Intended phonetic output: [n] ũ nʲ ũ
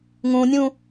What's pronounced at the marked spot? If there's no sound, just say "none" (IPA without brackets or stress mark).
ŋ